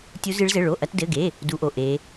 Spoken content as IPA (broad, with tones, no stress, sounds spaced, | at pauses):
tʲ u˦˥ z ɨ˦˥ ɭ z ɘ˧˥˧ ɭ o˧˥˧ ʔ ɐ˦˥ t d ɘ˧˥˧ ɡ e˧˥˧ | d u˦˥ ʔ o˧˥˧ ʔ e˦˥